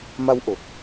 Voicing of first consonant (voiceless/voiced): voiced